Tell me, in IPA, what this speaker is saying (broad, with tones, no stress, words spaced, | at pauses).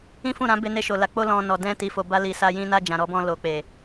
ĩ˦fũ˦˨ ɾã˨˦ be˧ne˧ʃo˨la˨˦ k͡po˦lɔ̃˧nɔ˨ dɛ̃˧ ti˨fo˨ba˧li˨ sa˧ jĩ˧na˧ d͡ʒã˨ɾɔ˧bɔ̃˧ lo˨k͡pe˨